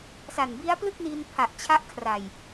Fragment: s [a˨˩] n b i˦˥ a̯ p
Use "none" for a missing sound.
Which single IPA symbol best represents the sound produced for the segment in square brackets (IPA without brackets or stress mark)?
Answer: a˨˩